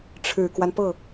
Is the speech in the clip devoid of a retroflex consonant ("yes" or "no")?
no